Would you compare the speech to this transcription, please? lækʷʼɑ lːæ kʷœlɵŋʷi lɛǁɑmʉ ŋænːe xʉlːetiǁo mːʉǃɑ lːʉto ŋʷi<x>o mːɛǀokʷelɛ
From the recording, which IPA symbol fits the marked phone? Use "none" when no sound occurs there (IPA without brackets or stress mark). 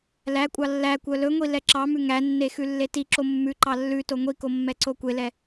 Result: k